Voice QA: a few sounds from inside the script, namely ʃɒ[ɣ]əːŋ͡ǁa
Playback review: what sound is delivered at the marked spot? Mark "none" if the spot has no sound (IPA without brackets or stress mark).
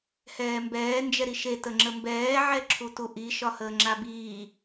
h